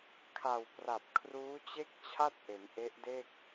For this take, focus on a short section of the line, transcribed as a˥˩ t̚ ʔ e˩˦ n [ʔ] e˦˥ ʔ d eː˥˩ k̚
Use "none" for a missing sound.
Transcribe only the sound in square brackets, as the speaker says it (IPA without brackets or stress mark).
ʔ